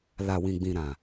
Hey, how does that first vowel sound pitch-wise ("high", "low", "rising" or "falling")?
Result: low